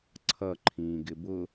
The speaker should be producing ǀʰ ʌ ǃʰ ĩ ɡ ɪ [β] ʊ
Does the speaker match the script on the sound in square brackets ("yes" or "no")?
no